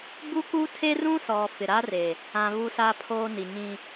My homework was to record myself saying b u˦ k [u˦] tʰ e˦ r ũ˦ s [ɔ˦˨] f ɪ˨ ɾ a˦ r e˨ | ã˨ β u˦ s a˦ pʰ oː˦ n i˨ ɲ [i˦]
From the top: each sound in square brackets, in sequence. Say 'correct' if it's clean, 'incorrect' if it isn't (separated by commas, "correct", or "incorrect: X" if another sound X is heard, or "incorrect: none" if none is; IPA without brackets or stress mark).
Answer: correct, incorrect: ɔ˨, incorrect: ĩ˦